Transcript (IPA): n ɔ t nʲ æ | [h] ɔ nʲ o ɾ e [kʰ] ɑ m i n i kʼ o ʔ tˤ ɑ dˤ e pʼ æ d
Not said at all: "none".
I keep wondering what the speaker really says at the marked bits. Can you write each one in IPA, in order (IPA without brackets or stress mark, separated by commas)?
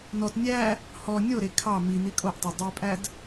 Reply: h, kʰ